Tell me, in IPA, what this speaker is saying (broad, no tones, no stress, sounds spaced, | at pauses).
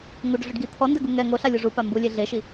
ŋ u ɖ ɮ ʊ ɖ ɡ i t̪ʰ ɔ n d ɛ ɡ u ŋ ɛ ŋ o ɬ a lʲ o ʐ u p a m b u lʲ e ɮ e ʃ i